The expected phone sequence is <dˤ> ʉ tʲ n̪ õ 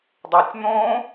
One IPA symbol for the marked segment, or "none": dˤ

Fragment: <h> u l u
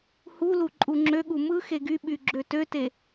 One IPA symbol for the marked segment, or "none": h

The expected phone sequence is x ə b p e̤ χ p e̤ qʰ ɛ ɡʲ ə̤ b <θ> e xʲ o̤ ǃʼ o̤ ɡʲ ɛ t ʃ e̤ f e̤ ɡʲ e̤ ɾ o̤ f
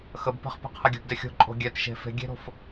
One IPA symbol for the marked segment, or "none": d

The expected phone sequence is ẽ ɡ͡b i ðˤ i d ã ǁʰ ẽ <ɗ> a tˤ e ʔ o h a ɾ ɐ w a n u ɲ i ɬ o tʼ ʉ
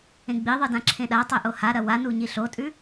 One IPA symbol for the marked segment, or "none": ɗ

